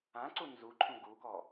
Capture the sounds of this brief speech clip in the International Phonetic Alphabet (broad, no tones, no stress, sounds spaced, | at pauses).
ã ǀ u n z u ǃʰ ũ ɡ u k ɔ